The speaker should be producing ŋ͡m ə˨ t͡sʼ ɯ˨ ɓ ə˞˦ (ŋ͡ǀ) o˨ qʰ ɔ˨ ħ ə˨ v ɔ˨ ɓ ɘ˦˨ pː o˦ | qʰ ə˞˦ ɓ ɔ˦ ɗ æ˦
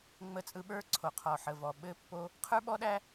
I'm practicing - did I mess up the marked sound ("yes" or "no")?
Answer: yes